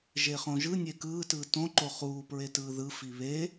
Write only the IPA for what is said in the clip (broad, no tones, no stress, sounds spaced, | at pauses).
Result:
ʒ e χ õ ʒ ɯ nʲ e k ɯː t ɯː t õ ǃ o χ uː p ɹ e t ɯː ð ɯ f i β e